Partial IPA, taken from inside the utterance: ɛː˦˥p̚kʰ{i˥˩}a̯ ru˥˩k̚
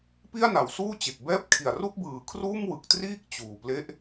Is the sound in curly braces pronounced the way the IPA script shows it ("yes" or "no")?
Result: no